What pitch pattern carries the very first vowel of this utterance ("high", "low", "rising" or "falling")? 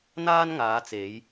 high